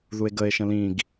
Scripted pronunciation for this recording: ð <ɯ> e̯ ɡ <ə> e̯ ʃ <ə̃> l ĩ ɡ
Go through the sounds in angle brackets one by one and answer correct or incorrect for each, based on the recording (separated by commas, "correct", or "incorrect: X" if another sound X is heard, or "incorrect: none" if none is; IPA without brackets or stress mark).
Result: incorrect: u, correct, correct